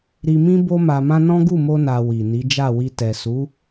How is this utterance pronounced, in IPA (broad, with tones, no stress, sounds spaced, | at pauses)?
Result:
ɾ i˧ m ĩ˦ b o˦ m a˧ m ã˦ n ɔ̃˦ ɡ u˦˨ m o˧ n a˨ w i˨ n i˨˦ d͡ʒ a˦˨ w i˧ t ɛ˨ s u˨˦